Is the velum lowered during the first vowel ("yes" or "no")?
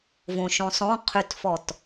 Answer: yes